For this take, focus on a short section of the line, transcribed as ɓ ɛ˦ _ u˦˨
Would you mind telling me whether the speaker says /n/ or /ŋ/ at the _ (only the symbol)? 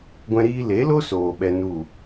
n